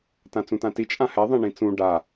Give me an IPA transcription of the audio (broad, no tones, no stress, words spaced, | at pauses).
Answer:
tãt͡sũtãti t͡ʃʼãhɛ ðˤɛ̃ɳĩt͡sũ ɖa